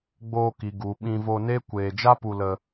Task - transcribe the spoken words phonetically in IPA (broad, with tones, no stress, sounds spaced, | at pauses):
ɡ͡b oː˧ k i˨ ɡ u˨ ɓ ĩ˧ v o˧ n e˦ kʷ eː˧ d͡ʒ a˦ p u˧ l ə˧